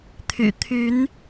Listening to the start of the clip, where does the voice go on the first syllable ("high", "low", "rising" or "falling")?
low